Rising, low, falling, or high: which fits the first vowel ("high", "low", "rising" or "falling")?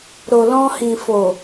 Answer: low